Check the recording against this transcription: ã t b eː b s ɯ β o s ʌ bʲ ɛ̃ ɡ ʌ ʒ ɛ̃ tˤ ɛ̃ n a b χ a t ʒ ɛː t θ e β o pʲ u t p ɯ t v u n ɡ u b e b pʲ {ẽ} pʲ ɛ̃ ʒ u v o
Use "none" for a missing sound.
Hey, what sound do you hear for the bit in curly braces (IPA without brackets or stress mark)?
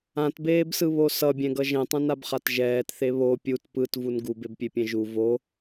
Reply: e